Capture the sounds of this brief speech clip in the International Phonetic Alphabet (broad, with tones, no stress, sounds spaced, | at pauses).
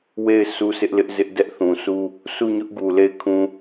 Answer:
w e˦˨ ɪ̯ sʰ u˦ s ɪ˦ ʔ l ɪ˦ ʔ z ɪ˦ ʔ d ɛ˦ ʔ θ ũ˨ s u˦ | s u˦˨ ɲ ʊ˦ ʔ ɡ u˨ l e˦˨ ɪ̯ kʰ ũ˦